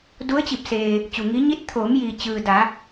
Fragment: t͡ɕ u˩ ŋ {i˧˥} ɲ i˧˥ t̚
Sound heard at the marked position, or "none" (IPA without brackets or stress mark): i˧˥